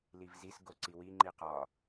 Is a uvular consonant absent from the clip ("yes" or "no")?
no